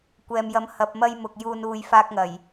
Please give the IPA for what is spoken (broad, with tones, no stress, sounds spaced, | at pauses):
kʷ ɛː˨ m j ɐ˨˥ m h ɐ˨ p̚ m ɐ˧ j m ʊ˨ k̚ j uː˨ n uː˨ j f aː˧ k̚ ŋ ɐ˨˩ j